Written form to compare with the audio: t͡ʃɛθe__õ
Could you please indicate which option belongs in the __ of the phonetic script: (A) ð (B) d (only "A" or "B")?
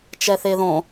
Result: A